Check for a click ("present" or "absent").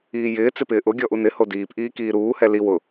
absent